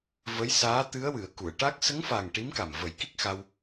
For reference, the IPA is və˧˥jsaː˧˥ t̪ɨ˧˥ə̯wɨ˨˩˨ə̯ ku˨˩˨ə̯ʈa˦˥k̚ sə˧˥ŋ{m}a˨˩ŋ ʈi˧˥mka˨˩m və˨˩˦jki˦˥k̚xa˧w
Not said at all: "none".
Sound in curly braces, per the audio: f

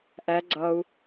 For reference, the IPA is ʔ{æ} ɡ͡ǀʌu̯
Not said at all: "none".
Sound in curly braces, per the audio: æ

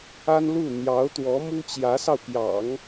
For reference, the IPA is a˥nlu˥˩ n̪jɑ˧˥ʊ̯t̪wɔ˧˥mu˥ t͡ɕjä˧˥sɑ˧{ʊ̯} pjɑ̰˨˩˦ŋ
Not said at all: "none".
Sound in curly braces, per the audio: ʊ̯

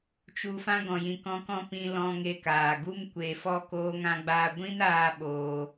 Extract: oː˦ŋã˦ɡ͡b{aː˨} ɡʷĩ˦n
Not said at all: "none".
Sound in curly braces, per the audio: aː˦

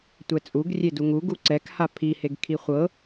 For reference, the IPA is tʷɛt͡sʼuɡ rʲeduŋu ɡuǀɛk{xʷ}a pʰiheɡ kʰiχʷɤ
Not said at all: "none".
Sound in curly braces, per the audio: h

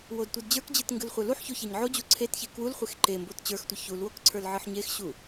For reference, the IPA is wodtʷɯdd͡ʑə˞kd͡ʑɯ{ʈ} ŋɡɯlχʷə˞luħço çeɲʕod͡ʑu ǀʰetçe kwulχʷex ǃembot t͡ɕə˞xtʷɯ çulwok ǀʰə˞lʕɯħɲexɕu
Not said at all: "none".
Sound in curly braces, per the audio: t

